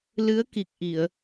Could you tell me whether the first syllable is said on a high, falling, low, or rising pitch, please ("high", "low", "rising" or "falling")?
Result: rising